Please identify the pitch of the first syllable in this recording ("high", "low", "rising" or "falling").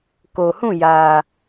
low